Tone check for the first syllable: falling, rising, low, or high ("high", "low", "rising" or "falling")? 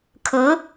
rising